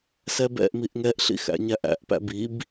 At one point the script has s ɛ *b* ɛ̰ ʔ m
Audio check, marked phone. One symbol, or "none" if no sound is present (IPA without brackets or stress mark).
b